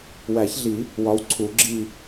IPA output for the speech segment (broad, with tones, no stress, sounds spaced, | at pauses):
w æ˨˩˦ ç ɮ i˨˩˦ | w ɒ˨˦ w ǀʰ u˨˩˦ ɡ͡ǁ i˦˨